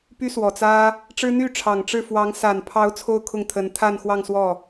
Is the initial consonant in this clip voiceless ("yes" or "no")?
yes